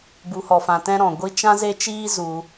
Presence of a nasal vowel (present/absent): present